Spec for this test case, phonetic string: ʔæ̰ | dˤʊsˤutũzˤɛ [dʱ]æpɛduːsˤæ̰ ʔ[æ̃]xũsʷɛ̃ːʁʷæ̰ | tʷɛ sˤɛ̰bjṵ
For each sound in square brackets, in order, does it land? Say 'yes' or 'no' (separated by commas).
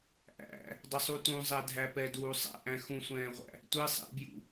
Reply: yes, yes